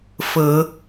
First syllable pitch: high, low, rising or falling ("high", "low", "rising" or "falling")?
rising